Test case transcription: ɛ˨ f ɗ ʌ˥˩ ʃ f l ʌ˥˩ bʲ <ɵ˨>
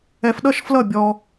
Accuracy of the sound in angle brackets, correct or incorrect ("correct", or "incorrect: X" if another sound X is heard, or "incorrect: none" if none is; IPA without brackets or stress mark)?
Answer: incorrect: ɔ˨